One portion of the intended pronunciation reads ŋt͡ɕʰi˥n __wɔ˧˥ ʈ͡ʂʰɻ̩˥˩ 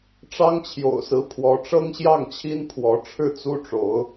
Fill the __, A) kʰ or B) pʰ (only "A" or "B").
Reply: B